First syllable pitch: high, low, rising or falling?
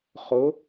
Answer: rising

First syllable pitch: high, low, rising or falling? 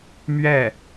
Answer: falling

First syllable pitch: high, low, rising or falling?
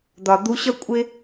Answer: low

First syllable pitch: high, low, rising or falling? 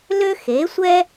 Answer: high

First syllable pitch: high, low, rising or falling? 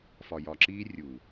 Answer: low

